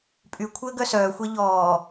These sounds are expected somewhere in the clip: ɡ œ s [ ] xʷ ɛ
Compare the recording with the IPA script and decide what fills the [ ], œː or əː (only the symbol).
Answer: œː